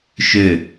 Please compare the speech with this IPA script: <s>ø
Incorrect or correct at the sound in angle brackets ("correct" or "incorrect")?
incorrect